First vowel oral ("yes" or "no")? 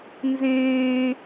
no